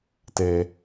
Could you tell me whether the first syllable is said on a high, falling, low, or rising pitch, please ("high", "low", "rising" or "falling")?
low